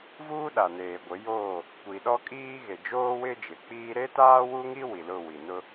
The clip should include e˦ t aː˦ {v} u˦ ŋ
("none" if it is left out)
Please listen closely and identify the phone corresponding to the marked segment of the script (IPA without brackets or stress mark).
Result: w